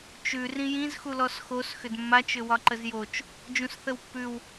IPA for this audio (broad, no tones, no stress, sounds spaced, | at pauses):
t͡ʃ ʉ r ĩ j ĩ z x u l ɔ s x o s x ʏ d mː a t͡ʃ ʏ w ɒ ǃ ə z j o t͡ʃ | d͡ʒ ũ s θ ə w pː ʉ w